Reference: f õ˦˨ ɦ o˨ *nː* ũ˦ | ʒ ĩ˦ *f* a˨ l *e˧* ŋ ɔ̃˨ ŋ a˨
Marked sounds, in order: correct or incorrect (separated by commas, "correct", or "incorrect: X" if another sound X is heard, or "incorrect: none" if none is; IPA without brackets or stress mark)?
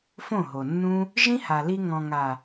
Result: correct, incorrect: h, incorrect: i˧